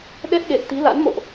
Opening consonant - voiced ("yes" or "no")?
yes